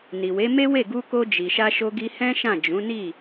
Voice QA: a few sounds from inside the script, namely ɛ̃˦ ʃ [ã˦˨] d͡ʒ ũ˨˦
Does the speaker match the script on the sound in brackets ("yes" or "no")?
yes